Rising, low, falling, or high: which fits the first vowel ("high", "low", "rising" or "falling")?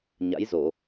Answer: rising